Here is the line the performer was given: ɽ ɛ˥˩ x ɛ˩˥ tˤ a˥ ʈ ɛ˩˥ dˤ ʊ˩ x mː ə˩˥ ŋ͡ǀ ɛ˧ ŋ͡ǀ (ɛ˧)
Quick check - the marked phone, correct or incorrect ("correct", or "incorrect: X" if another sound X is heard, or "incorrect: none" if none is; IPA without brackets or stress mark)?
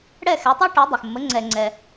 correct